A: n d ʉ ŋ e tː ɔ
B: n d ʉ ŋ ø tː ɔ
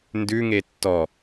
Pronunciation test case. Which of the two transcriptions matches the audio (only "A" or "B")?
A